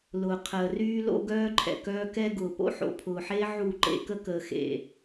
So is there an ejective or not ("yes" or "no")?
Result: no